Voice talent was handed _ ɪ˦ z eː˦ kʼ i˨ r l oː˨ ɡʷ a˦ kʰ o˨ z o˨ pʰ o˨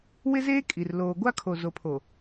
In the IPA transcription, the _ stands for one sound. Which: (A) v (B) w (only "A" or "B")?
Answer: B